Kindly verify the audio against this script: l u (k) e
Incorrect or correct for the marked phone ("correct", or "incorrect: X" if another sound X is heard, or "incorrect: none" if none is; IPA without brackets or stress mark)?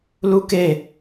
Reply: correct